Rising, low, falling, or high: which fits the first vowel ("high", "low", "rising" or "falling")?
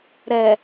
low